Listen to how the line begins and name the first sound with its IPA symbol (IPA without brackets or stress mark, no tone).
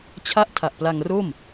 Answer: t͡ɕʰ